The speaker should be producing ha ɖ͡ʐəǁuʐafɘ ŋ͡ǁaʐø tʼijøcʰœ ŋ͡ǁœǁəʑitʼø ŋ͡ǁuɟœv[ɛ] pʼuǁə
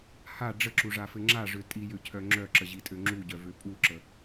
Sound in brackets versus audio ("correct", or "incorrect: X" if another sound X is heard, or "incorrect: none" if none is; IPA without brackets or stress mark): incorrect: ø